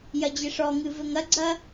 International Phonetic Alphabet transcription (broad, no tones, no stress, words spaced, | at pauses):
jɐd͡ʑeʂɔŋɨ vɘŋɐɡ͡ǀɐː